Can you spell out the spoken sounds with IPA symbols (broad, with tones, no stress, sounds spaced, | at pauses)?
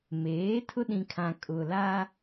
m eː˨˦ tʰ ʊ˦ ɗ ĩ˨ kʰ ã˨ kʼ ʊ˨ l a˦